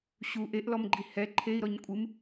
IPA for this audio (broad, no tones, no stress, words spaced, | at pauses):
ɕu ʔeʔlɔmɡ͡ǃi hɛ ǃʰei̯ɾɔɲ kʷʼɨm